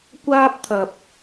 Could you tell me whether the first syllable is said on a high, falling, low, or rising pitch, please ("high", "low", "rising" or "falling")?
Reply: high